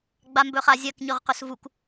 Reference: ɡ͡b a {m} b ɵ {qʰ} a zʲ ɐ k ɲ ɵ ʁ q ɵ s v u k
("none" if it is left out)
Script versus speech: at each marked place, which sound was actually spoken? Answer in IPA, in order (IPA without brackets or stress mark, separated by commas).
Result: m, χ